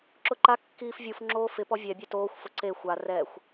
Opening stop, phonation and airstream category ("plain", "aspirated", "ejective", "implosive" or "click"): click